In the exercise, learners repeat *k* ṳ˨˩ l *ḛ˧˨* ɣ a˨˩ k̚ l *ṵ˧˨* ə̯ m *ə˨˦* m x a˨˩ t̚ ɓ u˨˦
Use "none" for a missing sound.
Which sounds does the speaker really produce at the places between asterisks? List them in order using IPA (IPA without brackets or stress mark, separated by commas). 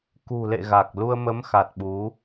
k, ḛ˧˨, u˧, ə˨˦